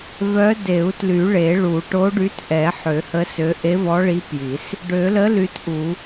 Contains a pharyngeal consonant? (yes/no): yes